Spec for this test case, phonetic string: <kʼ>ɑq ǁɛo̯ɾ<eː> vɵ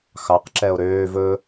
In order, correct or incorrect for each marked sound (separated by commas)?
incorrect, incorrect